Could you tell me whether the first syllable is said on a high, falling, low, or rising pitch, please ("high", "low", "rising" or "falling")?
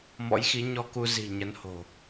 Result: rising